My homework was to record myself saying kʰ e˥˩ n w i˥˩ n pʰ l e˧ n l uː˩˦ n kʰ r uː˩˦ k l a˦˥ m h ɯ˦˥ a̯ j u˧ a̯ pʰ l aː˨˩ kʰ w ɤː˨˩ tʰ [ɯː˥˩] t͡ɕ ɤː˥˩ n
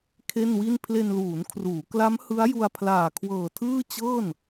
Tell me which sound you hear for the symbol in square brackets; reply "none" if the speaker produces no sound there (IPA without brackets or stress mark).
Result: ɯː˥˩